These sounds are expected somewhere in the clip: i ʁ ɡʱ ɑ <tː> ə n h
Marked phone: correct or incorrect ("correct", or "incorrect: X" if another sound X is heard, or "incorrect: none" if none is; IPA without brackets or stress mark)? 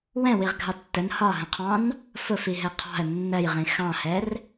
correct